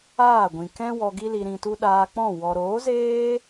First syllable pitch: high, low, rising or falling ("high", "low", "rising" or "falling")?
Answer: falling